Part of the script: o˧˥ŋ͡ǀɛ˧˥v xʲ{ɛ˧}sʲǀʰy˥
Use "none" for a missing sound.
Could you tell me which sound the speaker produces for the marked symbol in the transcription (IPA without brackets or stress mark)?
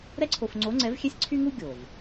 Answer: ɛ˥